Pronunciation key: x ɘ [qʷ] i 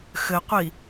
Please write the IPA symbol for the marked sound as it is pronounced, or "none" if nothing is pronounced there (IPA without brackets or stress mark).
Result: qʷ